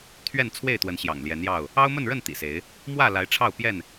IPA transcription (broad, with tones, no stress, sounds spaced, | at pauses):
t̪ʰ ɥ ɛ˥˨ n t͡sʰ w e˥˨ ɪ̯ t̪ w ə˨˦ n ɕ j ɑ̰˨˩ ŋ l j ɛ˨˦ n j ɑ˥˨ ʊ̯ | ɑ˦ ʊ̯ m ə˥˨ n ɻ ə˥˨ n t̪ ḭ˨˩ s e˨˦ ɪ̯ | m w ä˥˨ l a˨˦ ɪ̯ ʈ͡ʂʰ ɑ˥˨ ʊ̯ p j ɛ˥˨ n